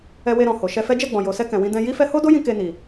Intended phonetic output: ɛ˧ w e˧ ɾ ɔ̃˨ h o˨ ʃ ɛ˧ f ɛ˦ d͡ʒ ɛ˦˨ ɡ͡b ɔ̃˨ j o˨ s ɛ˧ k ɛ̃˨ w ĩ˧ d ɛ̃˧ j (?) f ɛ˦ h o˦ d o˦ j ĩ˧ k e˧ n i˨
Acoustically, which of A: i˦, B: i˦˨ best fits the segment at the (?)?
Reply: A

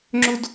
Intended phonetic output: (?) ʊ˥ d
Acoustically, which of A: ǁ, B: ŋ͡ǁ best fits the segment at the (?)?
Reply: B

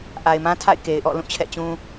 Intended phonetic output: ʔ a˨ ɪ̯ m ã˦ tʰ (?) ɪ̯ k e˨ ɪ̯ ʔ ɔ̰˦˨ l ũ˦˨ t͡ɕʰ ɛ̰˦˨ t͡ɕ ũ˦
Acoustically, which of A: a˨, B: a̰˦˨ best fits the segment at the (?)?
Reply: B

